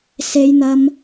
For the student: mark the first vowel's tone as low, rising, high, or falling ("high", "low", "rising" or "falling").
high